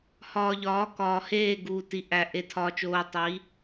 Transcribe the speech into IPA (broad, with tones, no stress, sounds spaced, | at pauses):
h ɒː˨ ʎ ɒː˨˦ k ɒː˨ h eː˦˨ ɡ uː˨ t i˨ ʔ æ˨ ʔ e˨ tʰ ɒː˨ t͡ʃ oː˨ tˤ i˨˦